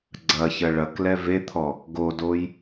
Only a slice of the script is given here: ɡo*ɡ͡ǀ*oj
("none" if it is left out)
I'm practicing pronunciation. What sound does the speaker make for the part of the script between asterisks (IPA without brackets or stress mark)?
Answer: d